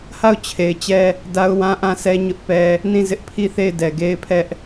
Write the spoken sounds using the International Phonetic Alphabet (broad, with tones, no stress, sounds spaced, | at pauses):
h a˦˨ ʊ̯ t͡ɕʰ e˨ ɪ̯ t͡ɕ ɛ˦ | d a˦ ʊ̯ w ã˦ ʔ ã˦˨ sʰ ɛ˦ ɲ ʊ˦ ʔ p ɛ˦ | n ĩ˦˨ z ɪ˦ ʔ pʰ i˦˨ θ e˦˨ ɪ̯ d ɛ˨ ɡ e˦ ɪ̯ pʰ ɛ˦ ʔ